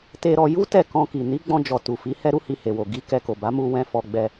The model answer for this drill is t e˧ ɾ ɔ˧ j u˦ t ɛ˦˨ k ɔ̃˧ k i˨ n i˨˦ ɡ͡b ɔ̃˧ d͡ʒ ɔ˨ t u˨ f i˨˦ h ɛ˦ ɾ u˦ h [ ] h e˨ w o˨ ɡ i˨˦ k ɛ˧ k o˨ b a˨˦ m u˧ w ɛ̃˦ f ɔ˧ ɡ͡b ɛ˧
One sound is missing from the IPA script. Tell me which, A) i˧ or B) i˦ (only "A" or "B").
A